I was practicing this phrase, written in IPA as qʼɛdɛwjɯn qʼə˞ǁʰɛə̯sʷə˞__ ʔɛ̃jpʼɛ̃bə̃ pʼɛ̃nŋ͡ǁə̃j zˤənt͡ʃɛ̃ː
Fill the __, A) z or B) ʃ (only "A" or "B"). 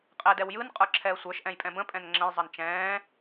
B